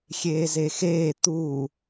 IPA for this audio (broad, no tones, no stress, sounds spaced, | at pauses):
xʲ eː z e x eː t̪ uː